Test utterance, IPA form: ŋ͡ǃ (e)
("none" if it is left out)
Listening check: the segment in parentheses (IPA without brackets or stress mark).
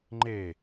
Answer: e